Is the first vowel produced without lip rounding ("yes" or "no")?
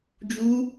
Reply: no